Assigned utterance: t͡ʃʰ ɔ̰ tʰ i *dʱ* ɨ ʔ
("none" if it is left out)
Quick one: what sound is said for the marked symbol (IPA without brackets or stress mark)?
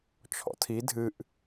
dʱ